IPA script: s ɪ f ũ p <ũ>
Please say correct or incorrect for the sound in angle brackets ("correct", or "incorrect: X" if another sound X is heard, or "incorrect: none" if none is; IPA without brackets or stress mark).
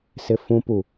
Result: incorrect: u